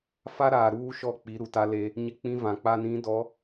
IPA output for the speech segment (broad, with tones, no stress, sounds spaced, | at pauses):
f a˦ ɾ aː˨ ɾ uː˦ ʃ ɔ˦˨ k͡p i˨˦ ɾ u˨ t a˦ l e˦ | ɲ ɪ˦ k͡p ĩ˦ v ã˨ k͡p a˦ n ĩ˨˦ d ɔ˨˦